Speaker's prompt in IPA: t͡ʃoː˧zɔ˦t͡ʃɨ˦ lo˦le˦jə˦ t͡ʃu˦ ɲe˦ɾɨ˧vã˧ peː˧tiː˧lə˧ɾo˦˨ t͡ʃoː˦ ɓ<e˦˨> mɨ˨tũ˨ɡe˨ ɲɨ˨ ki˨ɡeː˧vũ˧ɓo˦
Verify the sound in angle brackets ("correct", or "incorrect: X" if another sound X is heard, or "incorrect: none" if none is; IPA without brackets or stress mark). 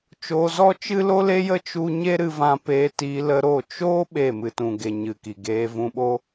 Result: correct